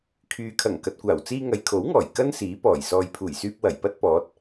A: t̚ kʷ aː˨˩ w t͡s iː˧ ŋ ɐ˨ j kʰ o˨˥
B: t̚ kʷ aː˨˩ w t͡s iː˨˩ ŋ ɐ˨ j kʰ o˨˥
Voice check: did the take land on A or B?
A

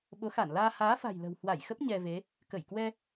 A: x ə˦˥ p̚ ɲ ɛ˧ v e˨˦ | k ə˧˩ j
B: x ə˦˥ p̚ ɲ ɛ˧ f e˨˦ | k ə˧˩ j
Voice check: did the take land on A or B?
A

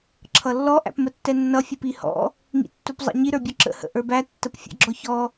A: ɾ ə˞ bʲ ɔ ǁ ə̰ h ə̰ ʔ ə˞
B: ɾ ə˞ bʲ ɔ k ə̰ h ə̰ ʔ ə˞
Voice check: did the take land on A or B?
A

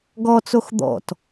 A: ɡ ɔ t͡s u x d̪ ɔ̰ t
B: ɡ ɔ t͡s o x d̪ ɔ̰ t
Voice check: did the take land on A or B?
B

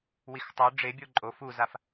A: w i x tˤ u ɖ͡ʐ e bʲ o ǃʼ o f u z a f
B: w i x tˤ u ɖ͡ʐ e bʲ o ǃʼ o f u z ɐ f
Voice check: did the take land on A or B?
A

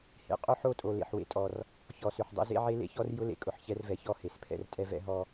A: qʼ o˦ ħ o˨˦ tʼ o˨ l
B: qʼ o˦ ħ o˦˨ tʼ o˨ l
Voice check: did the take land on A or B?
B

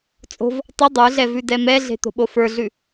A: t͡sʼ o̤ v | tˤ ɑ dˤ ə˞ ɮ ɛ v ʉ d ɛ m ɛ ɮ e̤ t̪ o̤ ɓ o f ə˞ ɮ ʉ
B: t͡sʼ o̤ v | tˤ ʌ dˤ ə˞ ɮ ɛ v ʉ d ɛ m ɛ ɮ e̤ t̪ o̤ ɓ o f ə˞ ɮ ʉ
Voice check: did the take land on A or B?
B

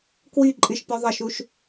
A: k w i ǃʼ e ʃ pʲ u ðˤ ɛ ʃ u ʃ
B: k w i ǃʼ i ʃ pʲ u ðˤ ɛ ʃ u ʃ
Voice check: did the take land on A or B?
B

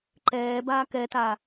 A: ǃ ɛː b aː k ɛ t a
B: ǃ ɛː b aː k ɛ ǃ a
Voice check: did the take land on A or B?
A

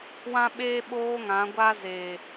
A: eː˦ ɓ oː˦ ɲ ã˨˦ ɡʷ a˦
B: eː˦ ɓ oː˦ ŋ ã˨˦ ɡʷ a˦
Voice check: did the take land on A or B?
B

